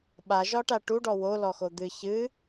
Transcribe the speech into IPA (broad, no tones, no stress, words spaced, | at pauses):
ɓaʒɒʈa ʈuɖɔ wolɔxo d̪ɨ çɨ